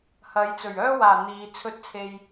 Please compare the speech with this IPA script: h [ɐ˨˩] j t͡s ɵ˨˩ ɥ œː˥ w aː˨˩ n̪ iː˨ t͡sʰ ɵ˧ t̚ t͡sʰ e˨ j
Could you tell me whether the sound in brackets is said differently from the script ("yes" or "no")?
yes